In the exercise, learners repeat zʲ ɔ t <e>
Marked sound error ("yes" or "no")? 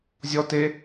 no